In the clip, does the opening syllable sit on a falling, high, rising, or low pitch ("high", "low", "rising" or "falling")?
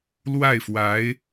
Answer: falling